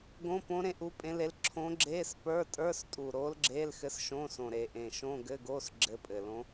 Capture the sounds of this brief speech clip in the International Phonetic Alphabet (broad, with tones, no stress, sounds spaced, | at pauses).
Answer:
ɡ õ˧˥˧ p õ˧˥ ɾ ẽ˧˥ ʔ u˧˥ pʼ ẽ˧˥ l e˧˥ l ǁʰ õ˧˥ ɡ͡ǁ eː˧˥˧ s p ə˞˧˥˧ tʼ ə˞˧˥˧ s tʼ u˨˩ ɾ oː˧˥ l ɡ͡ǁ eː˧˥˧ l x ɘ˧˥ s ʃ õ˧˥˧ s õ˨˩ ɾ e˨˩ ʔ ẽ˨˩ ʃ õ˧˥˧ ɡ ɘ˧˥˧ ɡ oː˧˥˧ s ɡ͡ǁ ɘ˧˥ pʼ ɘ˨˩ l õ˧˥